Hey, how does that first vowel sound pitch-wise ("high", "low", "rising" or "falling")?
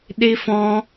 high